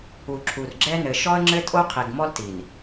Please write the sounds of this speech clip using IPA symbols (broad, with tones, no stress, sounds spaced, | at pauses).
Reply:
u˨ ǁʰ u˨ r ɡ͡ǁ ɛ˦ n ɘ˨ ʃ ɔ˦ ə̯ ŋ͡ǁ ɘ˦ tʼ o˦ qʰ i˨ ɡ m ɔ˦ l t i˨ n